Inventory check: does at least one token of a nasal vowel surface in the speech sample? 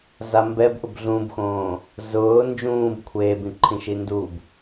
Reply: yes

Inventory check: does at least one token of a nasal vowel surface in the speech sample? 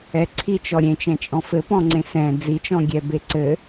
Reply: yes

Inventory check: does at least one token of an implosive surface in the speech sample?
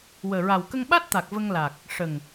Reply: yes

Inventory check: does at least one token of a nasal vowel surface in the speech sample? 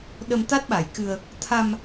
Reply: no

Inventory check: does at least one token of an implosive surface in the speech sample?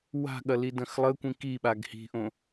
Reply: yes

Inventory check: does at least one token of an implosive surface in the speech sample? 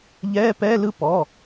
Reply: no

